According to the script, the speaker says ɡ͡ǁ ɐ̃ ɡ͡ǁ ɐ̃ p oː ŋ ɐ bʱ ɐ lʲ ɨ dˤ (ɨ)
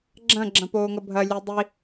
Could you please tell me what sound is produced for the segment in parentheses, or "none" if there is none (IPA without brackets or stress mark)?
i